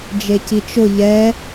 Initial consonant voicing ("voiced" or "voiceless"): voiced